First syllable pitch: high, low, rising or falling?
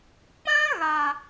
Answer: high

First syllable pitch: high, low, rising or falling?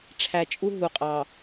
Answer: low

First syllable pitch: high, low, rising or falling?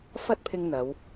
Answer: high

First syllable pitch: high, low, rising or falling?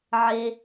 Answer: high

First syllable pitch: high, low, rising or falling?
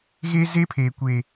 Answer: high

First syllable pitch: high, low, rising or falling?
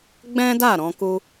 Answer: high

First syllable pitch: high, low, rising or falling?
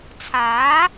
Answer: rising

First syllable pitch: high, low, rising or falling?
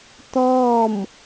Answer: falling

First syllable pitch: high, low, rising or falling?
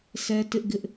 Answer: high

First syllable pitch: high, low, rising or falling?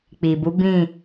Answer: low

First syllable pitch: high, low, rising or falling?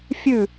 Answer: falling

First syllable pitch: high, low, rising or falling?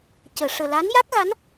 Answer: low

